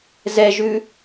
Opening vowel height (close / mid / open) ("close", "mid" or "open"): mid